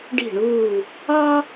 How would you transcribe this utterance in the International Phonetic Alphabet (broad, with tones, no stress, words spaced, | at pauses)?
ɖi̤˦˨ɳuː˦˨ | ɑ˥